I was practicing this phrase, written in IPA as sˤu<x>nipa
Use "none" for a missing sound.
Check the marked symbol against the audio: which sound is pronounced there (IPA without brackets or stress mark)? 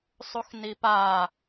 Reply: x